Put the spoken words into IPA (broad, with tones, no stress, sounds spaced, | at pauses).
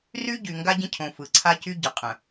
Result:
r y˦ ɟ y˨ ŋ ɡ a˦ ɟ ə̃˦ cʰ õ˨ f ɯ˨ ǀʰ a˦ c y˦ ɟ ɯ˨ qʼ ə̃˨